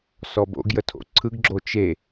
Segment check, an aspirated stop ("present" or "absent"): present